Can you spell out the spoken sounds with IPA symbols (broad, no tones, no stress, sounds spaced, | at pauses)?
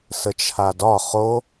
s ə t͡ʃʰ a d ɒ χ o